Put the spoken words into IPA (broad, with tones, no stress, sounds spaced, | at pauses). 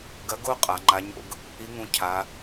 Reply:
ɡ ɐ˧˥ ɡ o˥ qʼ a˩˧ ŋ͡ǃ a˧˥ ɲ o̰˥ ɡ | i˧˥ ŋ ũ˧ cʰ a˩˧